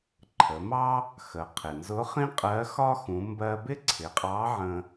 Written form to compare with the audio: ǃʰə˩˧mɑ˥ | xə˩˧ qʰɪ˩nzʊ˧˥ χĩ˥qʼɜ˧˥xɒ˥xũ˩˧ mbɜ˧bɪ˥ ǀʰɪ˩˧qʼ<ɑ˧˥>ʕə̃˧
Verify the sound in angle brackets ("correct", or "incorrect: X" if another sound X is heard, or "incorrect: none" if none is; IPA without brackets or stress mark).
correct